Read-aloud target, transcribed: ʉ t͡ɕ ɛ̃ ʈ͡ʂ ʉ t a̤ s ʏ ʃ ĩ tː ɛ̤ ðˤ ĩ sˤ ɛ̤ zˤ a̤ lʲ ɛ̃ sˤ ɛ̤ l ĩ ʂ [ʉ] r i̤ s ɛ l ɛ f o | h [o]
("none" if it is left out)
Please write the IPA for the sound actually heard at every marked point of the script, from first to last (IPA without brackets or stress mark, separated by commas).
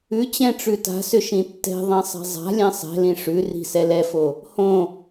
ʉ, õ